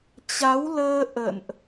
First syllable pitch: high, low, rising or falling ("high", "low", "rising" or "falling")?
rising